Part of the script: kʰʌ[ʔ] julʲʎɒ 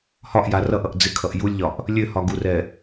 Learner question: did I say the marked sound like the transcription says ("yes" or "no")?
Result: yes